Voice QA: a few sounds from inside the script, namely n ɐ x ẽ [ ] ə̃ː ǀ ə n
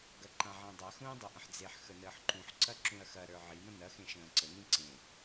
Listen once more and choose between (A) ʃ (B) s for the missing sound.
A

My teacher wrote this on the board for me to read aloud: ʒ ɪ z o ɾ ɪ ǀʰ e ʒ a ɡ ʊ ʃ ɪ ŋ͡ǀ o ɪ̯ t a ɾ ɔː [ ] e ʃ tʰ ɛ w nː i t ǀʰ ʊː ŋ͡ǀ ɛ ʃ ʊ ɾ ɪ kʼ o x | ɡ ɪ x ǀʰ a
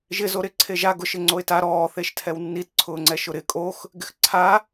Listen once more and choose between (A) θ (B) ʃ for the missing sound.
A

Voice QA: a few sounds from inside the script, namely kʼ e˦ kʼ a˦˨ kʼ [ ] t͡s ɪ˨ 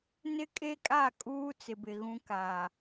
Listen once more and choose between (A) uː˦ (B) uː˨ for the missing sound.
A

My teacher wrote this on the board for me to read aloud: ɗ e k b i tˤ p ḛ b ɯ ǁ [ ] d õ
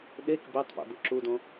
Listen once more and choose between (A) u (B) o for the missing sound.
A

